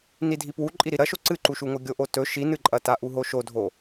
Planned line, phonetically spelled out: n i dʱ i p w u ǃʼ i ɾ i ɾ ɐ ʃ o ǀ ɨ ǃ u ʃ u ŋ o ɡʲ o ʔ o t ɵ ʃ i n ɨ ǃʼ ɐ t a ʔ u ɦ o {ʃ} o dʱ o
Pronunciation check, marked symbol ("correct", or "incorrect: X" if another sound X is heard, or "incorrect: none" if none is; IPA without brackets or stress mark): correct